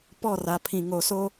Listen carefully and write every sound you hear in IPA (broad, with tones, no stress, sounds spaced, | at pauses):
p ɔ˦˨ r a˨ pʰ ĩ˨ ŋ o˨ s o˦